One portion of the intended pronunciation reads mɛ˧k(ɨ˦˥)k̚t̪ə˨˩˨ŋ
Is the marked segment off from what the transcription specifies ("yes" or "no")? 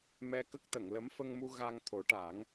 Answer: yes